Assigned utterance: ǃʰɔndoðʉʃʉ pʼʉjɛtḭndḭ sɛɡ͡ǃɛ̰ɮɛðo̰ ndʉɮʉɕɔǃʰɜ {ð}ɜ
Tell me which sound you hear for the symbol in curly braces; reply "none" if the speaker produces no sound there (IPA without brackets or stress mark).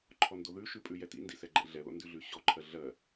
ɮ